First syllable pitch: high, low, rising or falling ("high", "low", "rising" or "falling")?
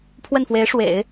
falling